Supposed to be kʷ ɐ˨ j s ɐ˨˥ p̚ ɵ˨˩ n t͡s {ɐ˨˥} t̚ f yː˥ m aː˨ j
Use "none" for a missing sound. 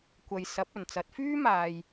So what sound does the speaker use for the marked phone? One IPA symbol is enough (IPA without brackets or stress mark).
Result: ɐ˨˥